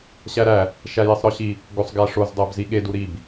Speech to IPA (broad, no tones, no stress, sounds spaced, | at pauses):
ɕ æ ɾ æ | ʃ æ j e sˤ ɾ ɒ ɕ i | ɡ o sˤ ɡ æ ʂ o z dˤ æ b z i ɠ e d u ɾ i b